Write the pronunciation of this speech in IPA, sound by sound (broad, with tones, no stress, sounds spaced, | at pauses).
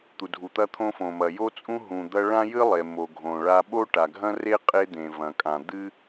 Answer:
t̪ u˩ dʱ u˩ t̪ ɐ˥ t̪ʰ õ˥ f õ˩ m ɐ˩ j o˥ t͡sʼ ũ˥ ɦ ũ˩ d̪ ɐ˥ ɭ ã˥ j ɨ˥ lˠ e˩ m o˩ ɡʱ õ˩ ɭ a˥ ɓ o˥ ʈ a˩ ɡʱ ɐ̃˥ r e˥ qʼ e˥ d̪ ẽ˩ v ɐ̃˩ kʼ ã˩ d̪ ɨ˥